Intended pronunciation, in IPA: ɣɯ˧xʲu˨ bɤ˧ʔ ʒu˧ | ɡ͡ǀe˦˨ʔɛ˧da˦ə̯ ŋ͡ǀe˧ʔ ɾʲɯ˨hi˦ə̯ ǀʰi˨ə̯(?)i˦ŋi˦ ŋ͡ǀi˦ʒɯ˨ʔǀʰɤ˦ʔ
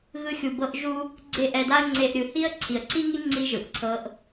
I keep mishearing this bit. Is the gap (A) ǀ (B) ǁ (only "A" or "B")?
A